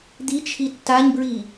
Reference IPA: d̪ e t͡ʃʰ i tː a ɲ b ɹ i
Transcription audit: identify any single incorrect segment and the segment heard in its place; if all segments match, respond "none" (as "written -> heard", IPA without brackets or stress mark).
e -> i